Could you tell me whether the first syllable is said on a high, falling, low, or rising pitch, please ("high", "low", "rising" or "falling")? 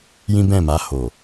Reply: high